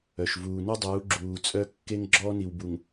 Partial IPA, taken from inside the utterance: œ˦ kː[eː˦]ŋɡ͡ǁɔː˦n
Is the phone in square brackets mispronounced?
yes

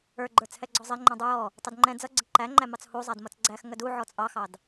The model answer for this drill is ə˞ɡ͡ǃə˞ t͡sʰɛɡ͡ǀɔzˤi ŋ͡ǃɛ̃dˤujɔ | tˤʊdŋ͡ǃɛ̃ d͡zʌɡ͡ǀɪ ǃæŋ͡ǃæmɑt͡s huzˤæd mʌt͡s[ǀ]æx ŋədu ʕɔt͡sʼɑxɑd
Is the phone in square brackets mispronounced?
yes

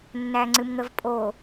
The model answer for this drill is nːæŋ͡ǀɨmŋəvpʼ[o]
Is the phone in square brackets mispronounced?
no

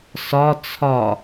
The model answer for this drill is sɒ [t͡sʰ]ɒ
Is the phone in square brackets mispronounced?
no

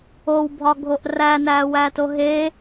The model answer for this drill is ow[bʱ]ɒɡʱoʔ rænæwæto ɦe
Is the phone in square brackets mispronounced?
no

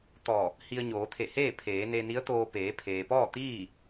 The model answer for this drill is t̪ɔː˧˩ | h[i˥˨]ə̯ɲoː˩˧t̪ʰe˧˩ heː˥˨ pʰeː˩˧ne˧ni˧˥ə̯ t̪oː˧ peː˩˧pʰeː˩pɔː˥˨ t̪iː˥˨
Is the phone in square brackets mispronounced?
yes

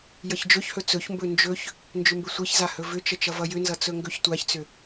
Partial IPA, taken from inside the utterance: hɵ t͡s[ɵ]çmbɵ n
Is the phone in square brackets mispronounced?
no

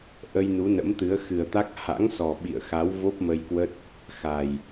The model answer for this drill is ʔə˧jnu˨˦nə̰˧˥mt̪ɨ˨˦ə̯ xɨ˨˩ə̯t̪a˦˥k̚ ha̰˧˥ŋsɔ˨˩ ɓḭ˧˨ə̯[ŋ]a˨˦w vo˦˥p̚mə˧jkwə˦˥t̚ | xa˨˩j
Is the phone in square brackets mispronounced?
yes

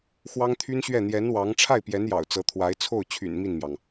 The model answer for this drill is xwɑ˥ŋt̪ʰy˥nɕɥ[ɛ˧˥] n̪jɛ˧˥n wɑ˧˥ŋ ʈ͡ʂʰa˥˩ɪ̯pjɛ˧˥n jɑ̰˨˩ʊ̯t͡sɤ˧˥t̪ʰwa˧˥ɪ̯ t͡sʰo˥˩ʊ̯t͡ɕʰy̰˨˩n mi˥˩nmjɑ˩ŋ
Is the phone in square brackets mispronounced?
yes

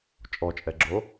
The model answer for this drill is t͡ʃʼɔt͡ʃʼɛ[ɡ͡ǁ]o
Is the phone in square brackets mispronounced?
no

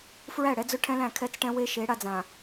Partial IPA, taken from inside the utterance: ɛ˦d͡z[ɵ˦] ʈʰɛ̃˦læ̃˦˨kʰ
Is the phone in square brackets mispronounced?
no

